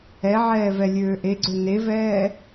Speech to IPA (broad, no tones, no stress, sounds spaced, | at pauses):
ɛ ʕ ɛː v ɛ lʲ øː ʔ e ɡ͡ǀ ø n e v ɛː